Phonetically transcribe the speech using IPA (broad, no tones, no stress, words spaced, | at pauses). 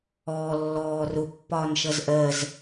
ɔːlːɔː rʊpːɒːnʃʌz ʔɜz